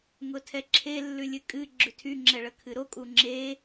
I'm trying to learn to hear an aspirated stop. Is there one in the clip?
yes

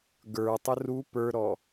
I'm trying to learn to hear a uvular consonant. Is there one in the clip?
no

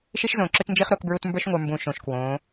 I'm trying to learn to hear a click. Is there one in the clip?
yes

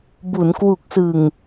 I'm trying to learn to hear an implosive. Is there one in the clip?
no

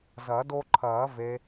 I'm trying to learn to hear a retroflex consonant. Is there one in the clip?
no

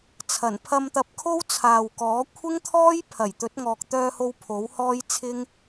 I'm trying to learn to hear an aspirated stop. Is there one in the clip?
yes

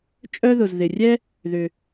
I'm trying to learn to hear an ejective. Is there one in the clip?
yes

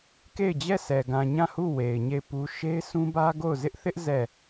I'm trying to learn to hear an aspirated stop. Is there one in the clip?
no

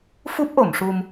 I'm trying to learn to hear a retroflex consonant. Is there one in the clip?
yes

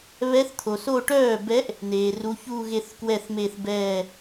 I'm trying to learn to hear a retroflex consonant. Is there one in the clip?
yes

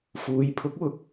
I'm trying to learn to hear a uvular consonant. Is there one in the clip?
no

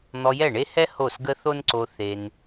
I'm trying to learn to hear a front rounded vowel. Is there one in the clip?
no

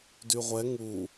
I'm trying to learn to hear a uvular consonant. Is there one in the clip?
yes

